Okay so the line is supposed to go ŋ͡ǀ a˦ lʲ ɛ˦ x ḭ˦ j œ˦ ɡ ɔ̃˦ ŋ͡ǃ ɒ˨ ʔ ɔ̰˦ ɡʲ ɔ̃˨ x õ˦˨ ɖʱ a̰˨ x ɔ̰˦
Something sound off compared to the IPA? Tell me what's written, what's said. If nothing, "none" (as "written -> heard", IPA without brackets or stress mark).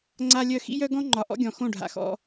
ɛ˦ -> œ˦